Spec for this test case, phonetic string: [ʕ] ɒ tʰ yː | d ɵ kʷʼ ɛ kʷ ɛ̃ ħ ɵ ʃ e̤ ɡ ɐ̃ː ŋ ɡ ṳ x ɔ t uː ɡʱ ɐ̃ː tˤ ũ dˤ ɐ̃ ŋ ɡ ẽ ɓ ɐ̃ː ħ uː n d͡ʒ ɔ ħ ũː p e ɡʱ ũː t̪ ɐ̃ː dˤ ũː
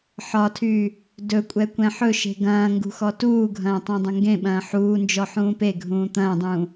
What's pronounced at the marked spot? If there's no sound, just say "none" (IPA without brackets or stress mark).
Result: ħ